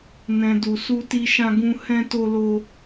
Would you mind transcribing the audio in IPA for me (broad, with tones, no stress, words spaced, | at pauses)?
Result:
nɛ̃˨du˨su˧ti˧ ʃã˧ɡũ˧ hɛ̃˧to˧lo˧